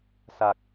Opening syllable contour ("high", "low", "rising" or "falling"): low